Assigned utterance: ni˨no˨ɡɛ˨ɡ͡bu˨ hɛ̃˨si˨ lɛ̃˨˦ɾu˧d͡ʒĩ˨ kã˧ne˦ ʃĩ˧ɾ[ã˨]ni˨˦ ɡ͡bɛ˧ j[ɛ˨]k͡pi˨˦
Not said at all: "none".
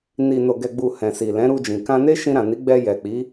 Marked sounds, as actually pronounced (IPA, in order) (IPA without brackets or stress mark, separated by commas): ã˨, ɛ˨